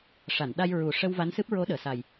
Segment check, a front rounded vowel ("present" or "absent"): absent